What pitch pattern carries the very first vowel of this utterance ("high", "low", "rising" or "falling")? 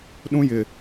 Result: high